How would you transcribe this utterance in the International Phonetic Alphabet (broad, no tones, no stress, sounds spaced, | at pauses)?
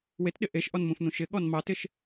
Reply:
w e t ɗ ɪ ʔ e ʃ ʔ ɔ n m ũ f n̪ ũ ʃ ɪ ɠ ɔ n m ɑ t ɪ ʃ